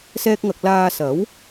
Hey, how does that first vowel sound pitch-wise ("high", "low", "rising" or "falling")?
high